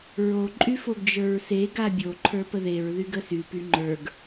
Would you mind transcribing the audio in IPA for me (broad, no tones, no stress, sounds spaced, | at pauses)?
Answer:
ɹ o ǃʼ y f o ɡ d͡ʒ ə˞ ɹ s e ɡ a bʲ o ǃʰ ə˞ p ə ð e ɹ ð y ɡ ə s y p y ŋ͡ǃ ə˞ ɡ